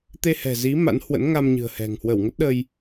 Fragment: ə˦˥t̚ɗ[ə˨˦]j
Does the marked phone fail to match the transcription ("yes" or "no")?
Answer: yes